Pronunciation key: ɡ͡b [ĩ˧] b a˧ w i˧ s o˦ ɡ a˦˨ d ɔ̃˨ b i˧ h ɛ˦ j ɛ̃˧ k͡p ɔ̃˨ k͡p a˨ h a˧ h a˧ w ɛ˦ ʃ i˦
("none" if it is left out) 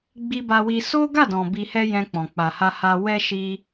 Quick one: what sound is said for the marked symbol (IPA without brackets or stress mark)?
i˧